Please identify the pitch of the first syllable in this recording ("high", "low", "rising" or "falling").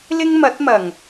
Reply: high